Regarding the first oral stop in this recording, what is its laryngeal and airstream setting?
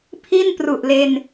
aspirated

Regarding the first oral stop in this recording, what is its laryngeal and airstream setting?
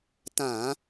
plain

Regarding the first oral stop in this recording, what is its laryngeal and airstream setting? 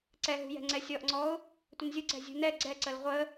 click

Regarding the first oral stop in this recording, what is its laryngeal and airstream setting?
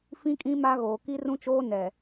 ejective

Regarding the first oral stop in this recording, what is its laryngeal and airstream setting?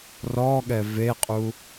implosive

